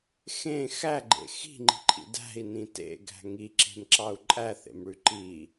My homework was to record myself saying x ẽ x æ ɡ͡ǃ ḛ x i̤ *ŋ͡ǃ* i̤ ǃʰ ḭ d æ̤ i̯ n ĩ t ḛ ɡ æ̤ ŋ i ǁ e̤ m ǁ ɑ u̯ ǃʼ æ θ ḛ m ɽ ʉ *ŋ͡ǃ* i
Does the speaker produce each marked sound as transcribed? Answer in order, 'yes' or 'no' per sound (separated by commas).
yes, no